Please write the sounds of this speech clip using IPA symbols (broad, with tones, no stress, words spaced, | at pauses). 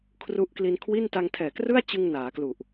kʰru˦˥ʔkli˧nkʰwi˥˩n ta˧ŋtʰɛː˨˩krɯ˥˩a̯t͡ɕɯ˧ŋ naː˩˦klu˨˩ʔ